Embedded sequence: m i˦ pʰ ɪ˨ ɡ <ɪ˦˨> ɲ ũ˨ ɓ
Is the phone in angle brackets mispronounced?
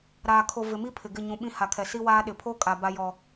no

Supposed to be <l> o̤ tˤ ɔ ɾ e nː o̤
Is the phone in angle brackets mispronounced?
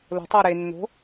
no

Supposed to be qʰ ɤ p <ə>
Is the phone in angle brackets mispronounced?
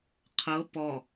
yes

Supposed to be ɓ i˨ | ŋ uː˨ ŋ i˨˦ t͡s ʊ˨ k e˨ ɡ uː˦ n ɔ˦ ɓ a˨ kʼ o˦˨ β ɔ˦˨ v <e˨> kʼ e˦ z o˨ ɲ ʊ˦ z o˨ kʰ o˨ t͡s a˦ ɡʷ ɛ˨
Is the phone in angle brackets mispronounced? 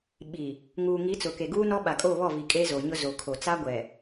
yes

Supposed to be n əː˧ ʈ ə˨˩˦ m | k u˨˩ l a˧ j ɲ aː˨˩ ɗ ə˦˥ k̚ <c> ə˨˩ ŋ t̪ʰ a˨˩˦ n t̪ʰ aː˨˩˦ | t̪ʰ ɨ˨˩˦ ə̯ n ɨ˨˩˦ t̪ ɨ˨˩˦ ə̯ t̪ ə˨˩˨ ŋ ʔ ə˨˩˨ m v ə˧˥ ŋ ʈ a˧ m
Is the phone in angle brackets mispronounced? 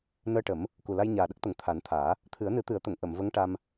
yes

